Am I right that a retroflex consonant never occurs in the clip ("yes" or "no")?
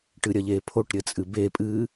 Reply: no